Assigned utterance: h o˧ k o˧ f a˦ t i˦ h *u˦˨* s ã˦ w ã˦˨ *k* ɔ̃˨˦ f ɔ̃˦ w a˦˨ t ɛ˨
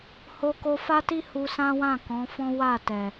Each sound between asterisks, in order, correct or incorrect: incorrect: u˧, correct

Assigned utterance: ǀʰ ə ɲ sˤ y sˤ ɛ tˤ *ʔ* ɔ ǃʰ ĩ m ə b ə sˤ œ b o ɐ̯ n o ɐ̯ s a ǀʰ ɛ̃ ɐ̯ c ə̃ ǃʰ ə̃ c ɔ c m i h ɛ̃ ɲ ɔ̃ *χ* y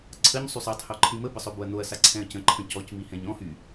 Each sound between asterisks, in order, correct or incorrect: incorrect: h, incorrect: h

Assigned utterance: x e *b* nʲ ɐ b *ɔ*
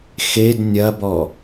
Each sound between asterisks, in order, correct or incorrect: incorrect: d, correct

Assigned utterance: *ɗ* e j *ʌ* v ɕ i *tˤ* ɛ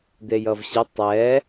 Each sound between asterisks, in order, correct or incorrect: incorrect: d̪, correct, correct

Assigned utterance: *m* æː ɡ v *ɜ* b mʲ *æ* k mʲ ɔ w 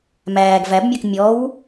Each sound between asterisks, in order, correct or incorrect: correct, incorrect: æ, incorrect: ɜ

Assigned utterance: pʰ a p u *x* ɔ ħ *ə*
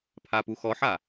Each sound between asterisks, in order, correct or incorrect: correct, incorrect: a

